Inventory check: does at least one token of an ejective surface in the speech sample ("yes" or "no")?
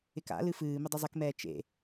no